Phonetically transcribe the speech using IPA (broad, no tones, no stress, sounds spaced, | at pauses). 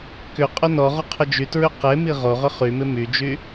k ʏ qʼ ʊ n ɔ ʁ ʊ qʰ ʊ d͡ʒ y t ɹ ʏ q e m i ʁ o ʁ ʏ χ y m ɪ m y d͡ʒ y